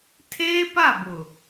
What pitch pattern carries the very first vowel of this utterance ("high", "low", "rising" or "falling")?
high